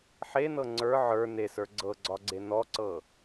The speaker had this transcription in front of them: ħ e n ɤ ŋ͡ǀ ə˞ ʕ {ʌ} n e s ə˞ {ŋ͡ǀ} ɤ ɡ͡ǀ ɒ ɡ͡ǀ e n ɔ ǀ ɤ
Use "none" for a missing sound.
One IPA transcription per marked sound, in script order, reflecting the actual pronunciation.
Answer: ə˞, ɡ͡ǀ

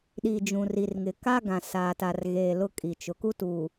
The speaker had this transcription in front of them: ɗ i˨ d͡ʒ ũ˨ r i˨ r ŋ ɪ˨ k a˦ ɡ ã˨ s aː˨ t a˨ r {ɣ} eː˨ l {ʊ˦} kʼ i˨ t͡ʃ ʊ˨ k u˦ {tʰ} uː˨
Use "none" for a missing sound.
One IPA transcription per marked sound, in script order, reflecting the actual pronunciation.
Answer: ɣ, ʊ˦, t

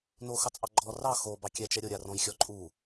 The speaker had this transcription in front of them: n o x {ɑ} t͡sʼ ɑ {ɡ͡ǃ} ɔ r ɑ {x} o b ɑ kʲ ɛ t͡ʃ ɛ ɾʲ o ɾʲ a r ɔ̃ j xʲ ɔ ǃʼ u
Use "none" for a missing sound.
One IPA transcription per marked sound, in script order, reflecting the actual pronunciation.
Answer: ɑ, ɡ͡ǃ, x

